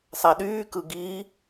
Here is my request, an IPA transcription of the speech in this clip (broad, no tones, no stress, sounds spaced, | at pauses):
sˤ æ ɗ yː k ɯ ɡ i